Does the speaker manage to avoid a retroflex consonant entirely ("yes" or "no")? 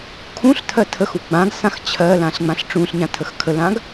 no